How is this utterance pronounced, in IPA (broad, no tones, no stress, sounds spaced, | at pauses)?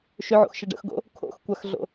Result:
ʃ ʏ ʕ o̰ x ʃ ə ɖ ə̰ x ɡ o̰ | kʰ o̰ x kʷ a x ɮ o̰